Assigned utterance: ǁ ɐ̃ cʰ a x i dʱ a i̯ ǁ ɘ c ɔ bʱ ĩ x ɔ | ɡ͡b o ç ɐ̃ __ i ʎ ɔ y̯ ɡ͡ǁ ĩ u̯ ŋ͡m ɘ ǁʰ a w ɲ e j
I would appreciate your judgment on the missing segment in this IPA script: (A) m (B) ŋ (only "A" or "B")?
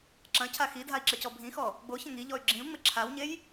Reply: B